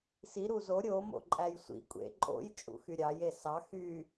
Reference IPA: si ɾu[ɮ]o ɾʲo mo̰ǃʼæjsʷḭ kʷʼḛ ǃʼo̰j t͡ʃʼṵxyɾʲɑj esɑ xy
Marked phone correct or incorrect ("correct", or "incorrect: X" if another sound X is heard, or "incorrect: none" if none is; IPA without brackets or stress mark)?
incorrect: z